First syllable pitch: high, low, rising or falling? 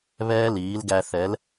high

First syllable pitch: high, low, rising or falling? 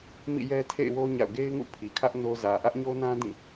falling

